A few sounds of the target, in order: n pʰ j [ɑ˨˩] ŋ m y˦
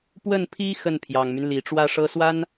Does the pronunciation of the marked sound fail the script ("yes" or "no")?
no